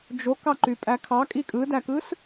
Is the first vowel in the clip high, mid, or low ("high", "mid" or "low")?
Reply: mid